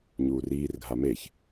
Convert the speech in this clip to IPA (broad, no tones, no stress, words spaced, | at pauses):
ɲuːriːrɡʱa meç